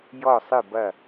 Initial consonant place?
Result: palatal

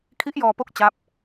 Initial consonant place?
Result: velar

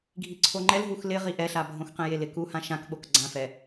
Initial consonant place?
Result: velar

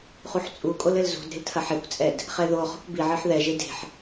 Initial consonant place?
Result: uvular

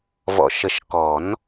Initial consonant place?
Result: labial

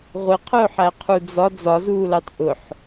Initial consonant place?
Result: uvular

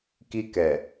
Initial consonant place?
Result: velar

